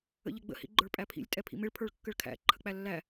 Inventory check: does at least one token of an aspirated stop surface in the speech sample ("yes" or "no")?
yes